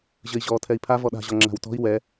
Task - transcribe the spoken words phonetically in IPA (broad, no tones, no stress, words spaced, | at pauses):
ʑɘi̯ʑɔːtʰɛi̯pʰa vɔɗa̤ ʑɔŋ͡ǁa̤wtɔ̤i̯ wɛ